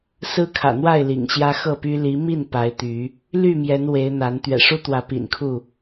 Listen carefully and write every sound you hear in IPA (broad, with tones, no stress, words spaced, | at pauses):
sɹ̩˦kʰä̰˨˩n̪wa˥˨ɪ̯ lḭ˨˩ŋɕjä˦xɤ˥˨py˦ li˨˦mi˥˨n pa˨˦ɪ̯t̪y˨˦ | ly˥˨mjɛ˨˦n we˨˦ɪ̯n̪a˨˦n t̪ɥɛ̰˨˩ʂu˦t̪wä˨˦ pḭ˨˩nkʰu˥˨